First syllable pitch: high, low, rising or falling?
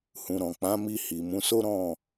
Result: low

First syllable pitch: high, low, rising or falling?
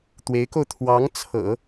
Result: rising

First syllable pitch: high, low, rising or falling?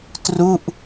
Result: falling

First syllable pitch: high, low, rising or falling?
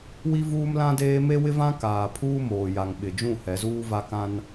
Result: high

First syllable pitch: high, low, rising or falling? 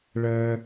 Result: high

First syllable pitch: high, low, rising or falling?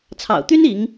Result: low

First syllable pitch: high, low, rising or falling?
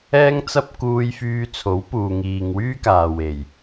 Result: high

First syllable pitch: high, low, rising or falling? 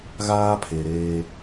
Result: high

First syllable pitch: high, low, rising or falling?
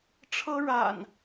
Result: high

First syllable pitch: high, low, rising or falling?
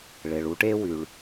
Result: low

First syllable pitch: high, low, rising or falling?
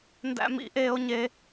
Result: high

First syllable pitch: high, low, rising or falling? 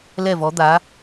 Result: falling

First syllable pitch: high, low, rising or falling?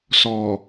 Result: low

